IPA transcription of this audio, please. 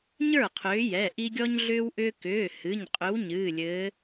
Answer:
ɲə˞˥˩qʰʏː˨˦jɛ˩˧˩ ʔi˦ɡʲɔ˦ɲɮʏː˦wʔʏː˦ kʏː˩˧˩ hɨ˩˧˩ɲ qʼʏ˨˦w ɲɨː˩˧˩lʲɘː˨˦

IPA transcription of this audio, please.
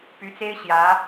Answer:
py˧˥t͡se˥ɪ̯ɕjä˧˥

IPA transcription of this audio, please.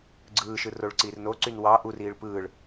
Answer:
ɡ͡ǀɯːʃɯ roɭǀiːrnoǀyn wɑ ʔuriːɭ pɯːɭ

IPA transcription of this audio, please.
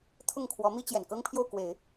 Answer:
t̪ʰʊ˥˩ŋkʰwɔ˧˥mi˥t͡ɕjɛ˨˩n kɤ˥ŋpʰjo˥˩ʊ̯kwe˨˩˦ɪ̯

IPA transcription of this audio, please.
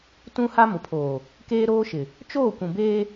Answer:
tũ˦ha˦ mʊ˨pʰoː˨ | keː˦ɾoː˦ʃɪ˨ | t͡ʃoː˦˨kʷũ˨beː˦

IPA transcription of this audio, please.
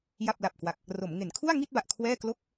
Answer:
ja˥˩p̚la˨˩p̚ kwa˨˩k̚ | ro˩˦mŋe˩˦nkʰu˥˩a̯ ŋi˥˩t̚ba˨˩ʔ kʰwɛː˥˩ klo˥˩k̚

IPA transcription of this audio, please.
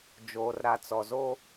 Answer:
d͡ʒoː˨rɾa˨t͡sɔ˨ zo˦

